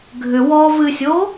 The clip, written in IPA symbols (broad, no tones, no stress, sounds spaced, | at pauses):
ɡʱ ʏ w ɔː v ɨ sʲ oː